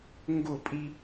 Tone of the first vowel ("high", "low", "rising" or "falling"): falling